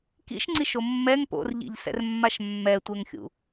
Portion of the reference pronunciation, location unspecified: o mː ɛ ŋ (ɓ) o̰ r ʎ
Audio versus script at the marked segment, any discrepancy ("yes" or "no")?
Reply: yes